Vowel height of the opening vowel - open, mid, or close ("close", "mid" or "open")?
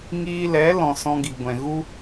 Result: close